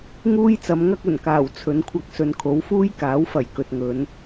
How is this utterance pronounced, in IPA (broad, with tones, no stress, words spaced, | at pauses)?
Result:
ŋuː˥jt͡sɐ˨˧mŋɐ˥k̚ ɵ˨˩nkaː˨˩w t͡sʰɵ˨˧nkʷʰɐ˧k̚ sɵ˨nkʰo˨˥w fuː˥jkaː˨˥wfɐ˨˩j kɵ˨t̚ŋɵ˨˧n